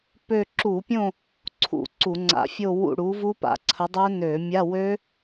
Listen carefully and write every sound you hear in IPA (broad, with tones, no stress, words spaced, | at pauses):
pø˦˨ ǁu˧˩˧pʲõ˦˨ | ǀʰṵ˧˩˧ǀu˧˩˧ŋ͡ǀa̰˧˩˧ fʲo˦˨ wṵ˦˨ɽu˨˥vu˦˥ pa̰˧˩˧ǀʰə˨˥dˤø˦˥ nø˧˩˧mʲa˧˥˧ wø˦˥